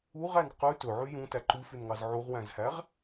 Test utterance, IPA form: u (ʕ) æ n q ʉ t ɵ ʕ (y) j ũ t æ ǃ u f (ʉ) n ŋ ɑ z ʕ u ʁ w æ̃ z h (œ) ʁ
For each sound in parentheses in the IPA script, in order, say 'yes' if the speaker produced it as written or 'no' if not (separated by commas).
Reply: no, yes, yes, no